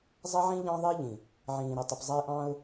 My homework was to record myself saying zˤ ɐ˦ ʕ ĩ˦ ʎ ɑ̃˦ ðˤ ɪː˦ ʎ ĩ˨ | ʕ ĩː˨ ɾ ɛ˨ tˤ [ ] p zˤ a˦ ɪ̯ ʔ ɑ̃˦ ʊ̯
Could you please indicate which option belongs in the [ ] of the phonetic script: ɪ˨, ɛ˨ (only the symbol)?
ɪ˨